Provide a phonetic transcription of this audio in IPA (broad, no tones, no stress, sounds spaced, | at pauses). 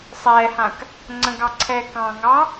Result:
sˤ ɛː h ã k | ŋ͡ǀ ə̃ ɡ ɑ ǀʰ ɛː k ɑ̃ ŋ ɑ